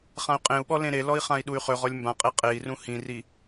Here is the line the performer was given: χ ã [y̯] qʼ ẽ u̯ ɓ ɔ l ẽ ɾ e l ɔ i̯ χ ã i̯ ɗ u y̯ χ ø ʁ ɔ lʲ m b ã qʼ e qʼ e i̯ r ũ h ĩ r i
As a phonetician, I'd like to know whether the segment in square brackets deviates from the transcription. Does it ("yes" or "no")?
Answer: no